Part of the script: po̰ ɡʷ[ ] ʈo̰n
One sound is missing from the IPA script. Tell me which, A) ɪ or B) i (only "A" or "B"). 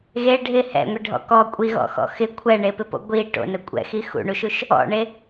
B